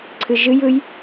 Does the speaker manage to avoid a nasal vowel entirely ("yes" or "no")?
yes